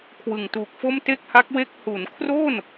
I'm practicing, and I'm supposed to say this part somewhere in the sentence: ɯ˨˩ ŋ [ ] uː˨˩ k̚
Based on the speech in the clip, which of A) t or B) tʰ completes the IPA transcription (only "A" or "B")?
A